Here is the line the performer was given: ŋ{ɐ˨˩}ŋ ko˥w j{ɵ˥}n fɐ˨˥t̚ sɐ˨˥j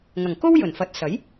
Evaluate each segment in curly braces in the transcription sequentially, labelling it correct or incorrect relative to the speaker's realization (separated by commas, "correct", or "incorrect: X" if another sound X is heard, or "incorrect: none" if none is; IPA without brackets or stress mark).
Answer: correct, incorrect: ɵ˨˩